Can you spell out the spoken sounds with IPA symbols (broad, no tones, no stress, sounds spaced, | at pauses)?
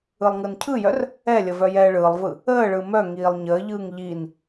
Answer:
ɯ lˠ ŋ ɯ n cʰ ɯ j œ r | ɛ lʲ ə v œ j ɛː ɭ ɯː lˠ v ɯ | əː ɭ ɯ m œ ŋ iː lˠ ɲ əː ʎ ɯː ŋ ʎ i n